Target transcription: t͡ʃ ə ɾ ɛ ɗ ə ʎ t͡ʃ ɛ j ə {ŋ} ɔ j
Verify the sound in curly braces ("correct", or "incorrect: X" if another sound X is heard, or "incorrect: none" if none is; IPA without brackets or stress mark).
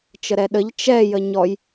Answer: incorrect: ɲ